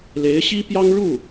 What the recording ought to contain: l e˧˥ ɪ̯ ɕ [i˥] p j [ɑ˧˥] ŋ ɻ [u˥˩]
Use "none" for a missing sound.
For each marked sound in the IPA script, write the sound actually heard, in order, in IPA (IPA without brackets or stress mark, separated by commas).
i˥, ɑ˥, u˥˩